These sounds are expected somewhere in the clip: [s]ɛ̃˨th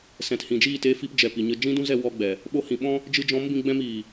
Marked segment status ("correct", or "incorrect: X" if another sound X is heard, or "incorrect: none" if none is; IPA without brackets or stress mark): correct